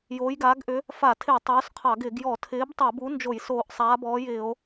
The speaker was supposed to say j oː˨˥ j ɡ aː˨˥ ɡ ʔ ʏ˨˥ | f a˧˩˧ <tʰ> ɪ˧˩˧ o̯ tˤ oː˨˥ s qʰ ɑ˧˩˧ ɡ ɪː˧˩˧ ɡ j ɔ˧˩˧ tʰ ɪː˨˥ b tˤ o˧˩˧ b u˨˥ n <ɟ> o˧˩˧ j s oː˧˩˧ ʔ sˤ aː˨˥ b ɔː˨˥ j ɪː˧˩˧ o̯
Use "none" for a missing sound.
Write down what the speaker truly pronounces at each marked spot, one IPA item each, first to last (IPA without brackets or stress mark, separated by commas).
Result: tʰ, d͡ʒ